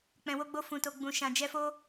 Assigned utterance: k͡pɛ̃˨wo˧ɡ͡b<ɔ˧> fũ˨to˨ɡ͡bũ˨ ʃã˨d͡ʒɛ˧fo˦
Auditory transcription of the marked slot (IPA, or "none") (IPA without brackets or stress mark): o˧